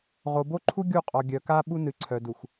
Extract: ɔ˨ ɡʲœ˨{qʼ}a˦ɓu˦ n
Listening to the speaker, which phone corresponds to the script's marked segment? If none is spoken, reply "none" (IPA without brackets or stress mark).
k